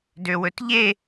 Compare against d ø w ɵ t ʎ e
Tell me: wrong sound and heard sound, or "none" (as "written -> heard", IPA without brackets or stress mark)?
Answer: none